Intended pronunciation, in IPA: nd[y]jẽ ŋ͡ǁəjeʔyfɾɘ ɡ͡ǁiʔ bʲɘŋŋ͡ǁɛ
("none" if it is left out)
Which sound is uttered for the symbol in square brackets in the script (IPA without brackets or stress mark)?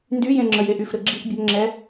y